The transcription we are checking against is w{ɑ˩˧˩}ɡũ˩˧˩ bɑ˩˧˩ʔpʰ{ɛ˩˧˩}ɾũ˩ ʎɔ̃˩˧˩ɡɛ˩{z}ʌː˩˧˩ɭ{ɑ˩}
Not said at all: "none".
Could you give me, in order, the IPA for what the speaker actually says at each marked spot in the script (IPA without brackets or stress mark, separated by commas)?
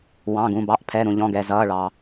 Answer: ɑ̃˩˧˩, ɛ˩˧˩, z, ɑ˩